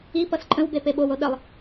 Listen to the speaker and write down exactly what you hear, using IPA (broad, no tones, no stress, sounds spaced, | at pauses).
i p ʌ s ǃʼ ə̃ w b e p e ɓ o w o ɗ ə lˠ